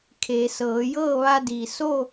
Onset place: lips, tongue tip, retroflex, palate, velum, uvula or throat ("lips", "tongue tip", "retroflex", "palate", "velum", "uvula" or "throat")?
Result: velum